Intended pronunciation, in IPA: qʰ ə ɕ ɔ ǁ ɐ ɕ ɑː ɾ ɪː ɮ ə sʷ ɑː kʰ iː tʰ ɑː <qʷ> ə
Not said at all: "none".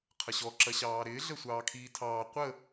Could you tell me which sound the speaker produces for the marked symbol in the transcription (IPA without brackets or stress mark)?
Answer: qʷ